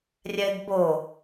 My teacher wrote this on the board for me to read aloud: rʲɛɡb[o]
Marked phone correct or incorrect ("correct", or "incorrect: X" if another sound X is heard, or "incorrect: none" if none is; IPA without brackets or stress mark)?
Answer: correct